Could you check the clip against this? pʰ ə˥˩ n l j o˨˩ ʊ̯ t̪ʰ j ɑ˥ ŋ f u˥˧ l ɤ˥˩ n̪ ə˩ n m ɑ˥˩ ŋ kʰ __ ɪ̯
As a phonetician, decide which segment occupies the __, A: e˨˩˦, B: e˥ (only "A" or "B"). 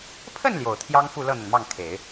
A